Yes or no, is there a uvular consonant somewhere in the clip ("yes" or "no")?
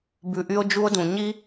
no